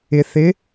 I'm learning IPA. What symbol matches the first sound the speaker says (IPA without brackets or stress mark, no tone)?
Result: ɪ